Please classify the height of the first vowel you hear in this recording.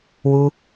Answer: high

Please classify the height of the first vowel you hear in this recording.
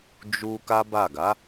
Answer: high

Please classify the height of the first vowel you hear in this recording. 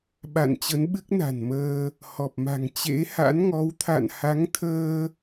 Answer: low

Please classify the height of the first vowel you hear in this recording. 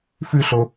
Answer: high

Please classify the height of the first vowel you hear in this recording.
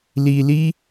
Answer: high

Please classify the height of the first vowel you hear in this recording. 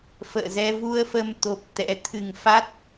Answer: mid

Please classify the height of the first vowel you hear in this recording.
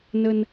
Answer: mid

